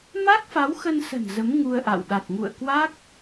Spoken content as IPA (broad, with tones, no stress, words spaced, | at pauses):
ma˦˥k̚fa˨˦wxə˧nsə̤˨˩n zə˨˦m ŋu˧ə̯ʔa̰˧˨w ɗa˨˩t̚ŋṵ˧˨ə̯kwa˦˥k̚